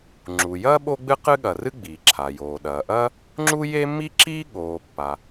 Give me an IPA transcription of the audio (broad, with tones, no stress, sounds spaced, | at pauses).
ŋ͡ǁ u˩ j ɐː˥ ɓ o˥ ɡ͡b ɨ˥ q ɨ˥ ɠ ɐ˩ r ɨ˥ ɡ͡b iː˩ ǁʰ a˩ j oː˩ ɗ ɐː˩ ʔ ɐ˥ | ŋ͡ǁ u˥ j e˥ mː i˥ ǁ iː˥ ɠ oː˩ pː a˩